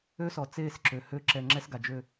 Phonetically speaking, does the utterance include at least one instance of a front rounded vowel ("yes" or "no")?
yes